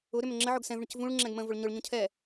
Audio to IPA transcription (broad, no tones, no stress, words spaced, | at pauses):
ʊ ɾʏmʏŋ͡ǁəʕʊɡ sɛ̃vɳʏc vũɭŋ͡ǁɛ̃ɡ mə̃vʊɭ ɲʊɭɲũ cʰɛ